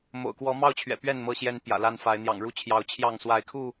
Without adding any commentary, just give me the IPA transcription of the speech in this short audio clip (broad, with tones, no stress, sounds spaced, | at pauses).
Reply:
m o̰˨˩ ʊ̯ k w ɔ˨˦ m ɑ˦ ʊ̯ t͡ɕʰ ɥ ɛ̰˨˩ p ɥ ɛ˥˨ n m ɤ˥˨ ɕ j ɛ˦ n p j ä̰˨˩ l a˦ n f a˨˦ ɪ̯ n̪ j ɑ̰˨˩ ŋ ɻ u˥˨ t͡ɕʰ j ɑ˨˦ ʊ̯ t͡ɕʰ j ɑ˥˨ ŋ s w a˨˦ ɪ̯ kʰ u˥˨